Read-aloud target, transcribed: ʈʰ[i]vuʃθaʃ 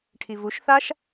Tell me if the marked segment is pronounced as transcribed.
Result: yes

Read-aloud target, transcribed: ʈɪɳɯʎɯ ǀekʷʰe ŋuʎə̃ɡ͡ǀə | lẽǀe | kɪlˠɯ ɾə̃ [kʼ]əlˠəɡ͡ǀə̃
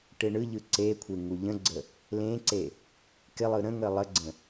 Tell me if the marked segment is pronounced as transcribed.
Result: no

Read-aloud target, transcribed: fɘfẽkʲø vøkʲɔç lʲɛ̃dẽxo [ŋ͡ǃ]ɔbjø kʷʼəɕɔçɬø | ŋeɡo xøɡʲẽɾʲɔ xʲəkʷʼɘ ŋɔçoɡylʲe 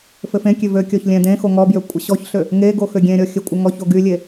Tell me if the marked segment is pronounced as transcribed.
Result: no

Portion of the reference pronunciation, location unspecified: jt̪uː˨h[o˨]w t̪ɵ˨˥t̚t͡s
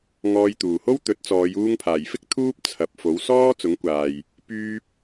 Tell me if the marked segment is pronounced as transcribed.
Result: no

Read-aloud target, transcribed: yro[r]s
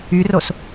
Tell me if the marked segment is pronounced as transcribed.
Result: no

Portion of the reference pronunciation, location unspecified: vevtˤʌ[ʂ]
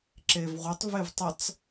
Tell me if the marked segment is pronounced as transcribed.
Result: no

